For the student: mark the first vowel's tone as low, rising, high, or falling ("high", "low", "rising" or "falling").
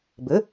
rising